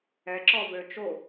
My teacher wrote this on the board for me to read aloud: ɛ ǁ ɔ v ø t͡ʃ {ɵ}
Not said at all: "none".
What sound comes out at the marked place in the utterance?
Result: o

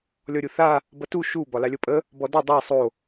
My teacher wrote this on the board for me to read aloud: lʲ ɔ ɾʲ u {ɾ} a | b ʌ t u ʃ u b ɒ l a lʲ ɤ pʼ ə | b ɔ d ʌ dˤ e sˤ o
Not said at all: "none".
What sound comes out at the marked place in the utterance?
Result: θ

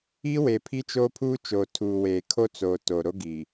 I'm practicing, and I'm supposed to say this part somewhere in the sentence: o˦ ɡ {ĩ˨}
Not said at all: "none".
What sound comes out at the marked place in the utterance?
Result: i˨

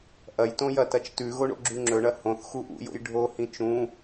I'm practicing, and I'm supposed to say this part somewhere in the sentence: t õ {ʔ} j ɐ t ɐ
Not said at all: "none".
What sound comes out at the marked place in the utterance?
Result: none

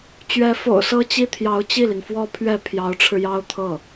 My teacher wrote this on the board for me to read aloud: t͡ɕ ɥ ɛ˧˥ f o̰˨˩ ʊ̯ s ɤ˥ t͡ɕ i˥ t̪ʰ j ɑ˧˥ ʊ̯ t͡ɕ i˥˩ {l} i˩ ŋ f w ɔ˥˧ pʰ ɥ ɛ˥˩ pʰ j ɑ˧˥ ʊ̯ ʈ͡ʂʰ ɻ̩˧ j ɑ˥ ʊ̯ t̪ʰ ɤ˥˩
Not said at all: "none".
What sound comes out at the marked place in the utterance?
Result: l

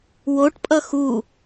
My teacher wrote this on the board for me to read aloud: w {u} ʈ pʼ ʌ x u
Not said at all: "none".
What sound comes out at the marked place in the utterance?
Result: o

